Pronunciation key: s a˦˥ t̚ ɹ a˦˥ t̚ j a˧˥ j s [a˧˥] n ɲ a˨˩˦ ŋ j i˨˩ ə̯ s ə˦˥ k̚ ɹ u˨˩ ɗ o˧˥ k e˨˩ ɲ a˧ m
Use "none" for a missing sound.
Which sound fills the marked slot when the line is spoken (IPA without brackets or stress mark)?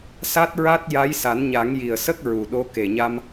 a˨˩˦